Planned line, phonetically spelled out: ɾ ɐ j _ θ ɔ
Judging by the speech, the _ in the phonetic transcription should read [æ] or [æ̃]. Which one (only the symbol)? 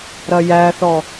æ